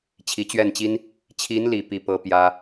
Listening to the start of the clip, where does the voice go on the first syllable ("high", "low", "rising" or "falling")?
rising